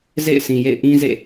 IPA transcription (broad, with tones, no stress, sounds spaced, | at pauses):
z ḛ˦˨ ɪ̯ s ĩ˨ j ḛ˦˨ ɪ̯ ʔ ĩ˦ z ḛ˦˨